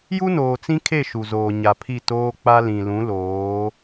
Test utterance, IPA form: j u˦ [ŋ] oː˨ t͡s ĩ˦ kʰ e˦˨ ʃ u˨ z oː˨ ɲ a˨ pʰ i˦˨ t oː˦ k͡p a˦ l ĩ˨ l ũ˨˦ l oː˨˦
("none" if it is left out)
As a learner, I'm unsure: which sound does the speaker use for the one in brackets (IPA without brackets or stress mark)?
n